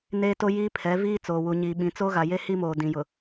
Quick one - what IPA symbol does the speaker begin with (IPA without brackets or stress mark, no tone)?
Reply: n